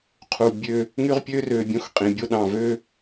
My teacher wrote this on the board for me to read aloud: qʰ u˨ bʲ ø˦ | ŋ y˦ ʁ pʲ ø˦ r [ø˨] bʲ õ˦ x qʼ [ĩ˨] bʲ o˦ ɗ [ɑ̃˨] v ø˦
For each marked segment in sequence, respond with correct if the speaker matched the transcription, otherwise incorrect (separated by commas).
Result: correct, correct, correct